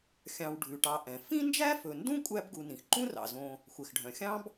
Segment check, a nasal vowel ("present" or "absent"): present